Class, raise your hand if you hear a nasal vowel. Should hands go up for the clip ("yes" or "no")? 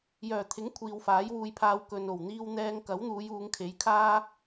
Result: no